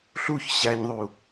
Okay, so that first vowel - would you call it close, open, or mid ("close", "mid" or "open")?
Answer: close